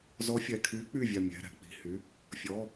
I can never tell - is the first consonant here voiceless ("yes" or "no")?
no